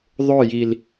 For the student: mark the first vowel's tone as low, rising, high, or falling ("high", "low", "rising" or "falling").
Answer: falling